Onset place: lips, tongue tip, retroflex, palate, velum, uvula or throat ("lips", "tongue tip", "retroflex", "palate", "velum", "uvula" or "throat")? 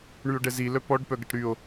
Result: retroflex